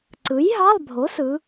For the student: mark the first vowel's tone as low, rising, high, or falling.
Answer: rising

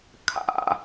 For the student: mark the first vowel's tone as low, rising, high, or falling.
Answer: falling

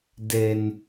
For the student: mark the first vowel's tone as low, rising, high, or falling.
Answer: low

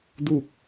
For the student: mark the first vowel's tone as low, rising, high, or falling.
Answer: falling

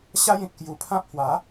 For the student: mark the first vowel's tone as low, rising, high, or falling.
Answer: high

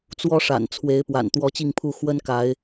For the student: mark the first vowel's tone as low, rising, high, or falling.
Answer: high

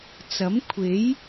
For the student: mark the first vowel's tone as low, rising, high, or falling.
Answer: rising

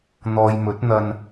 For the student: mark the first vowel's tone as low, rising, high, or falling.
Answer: low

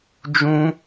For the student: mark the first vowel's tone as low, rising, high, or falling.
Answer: high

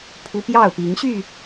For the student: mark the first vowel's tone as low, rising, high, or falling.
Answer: high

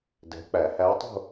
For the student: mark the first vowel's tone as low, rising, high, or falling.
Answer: rising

